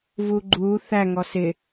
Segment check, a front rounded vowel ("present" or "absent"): absent